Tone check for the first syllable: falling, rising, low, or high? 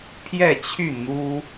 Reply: falling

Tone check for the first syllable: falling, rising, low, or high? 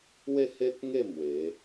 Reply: falling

